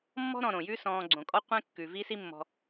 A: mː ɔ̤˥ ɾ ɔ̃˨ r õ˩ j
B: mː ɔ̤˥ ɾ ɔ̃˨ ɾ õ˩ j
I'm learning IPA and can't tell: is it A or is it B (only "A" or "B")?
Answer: B